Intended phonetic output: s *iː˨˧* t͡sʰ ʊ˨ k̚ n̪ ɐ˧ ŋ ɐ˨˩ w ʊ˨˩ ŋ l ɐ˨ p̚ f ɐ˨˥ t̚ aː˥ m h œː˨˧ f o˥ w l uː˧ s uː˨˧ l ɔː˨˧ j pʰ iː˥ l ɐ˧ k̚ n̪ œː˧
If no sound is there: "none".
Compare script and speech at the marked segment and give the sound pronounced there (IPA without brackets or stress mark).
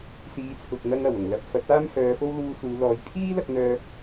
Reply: iː˨˧